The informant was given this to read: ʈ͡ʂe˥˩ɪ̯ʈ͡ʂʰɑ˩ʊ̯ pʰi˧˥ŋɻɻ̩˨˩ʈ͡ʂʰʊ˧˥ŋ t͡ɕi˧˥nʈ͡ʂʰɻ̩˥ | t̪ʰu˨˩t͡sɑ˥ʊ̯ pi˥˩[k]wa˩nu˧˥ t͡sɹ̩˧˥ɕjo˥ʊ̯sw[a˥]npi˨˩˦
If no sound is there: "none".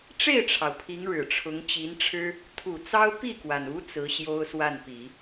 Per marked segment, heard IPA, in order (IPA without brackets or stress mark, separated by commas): k, a˥˩